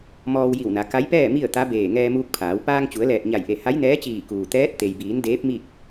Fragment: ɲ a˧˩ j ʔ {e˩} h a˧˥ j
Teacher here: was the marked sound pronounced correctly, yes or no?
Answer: no